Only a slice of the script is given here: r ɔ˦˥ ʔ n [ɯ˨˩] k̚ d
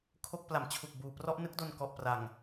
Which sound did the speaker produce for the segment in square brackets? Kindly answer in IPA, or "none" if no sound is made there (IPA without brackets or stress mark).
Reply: ɯ˦˥